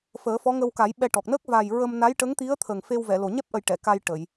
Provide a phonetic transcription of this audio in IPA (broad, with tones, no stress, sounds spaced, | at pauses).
f əː˨˩˦ f ɔ˧˥ ŋ ə˧ w k a˨˩˦ j ɓ ɛ˧ ʈ ɔ˨˩ k̚ n əː˦˥ k̚ v a˨˩ j ɹ ə˧ m n a˧˥ j ʈ ə˧˥ ŋ t̪ i˧˥ ə̯ t̪ʰ ə˨˩ ŋ f e˧ w v ɛ˨˩˨ l o˨˩ ɲ ɛ˦˥ p̚ ʔ ə˨˩ j ʈ ɛ˨˩˨ k a˧ j ʈ ə˨˩˨ j